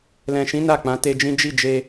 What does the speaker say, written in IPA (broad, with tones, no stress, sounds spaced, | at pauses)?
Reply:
l ɛ̃˨ ʃ ĩ˨˦ n a˦˨ k͡p ã˨˦ t e˧ d͡ʒ ĩ˦ d͡ʒ i˦˨ d͡ʒ e˧